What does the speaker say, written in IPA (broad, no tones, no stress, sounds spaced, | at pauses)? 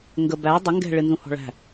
ŋ ɡ ə b æ dˤ ə ŋ ɡ ɛ̤ ɭ ɪ n z ũ h ɔ̤ ɭ æ̤